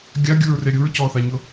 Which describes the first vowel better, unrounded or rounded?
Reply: unrounded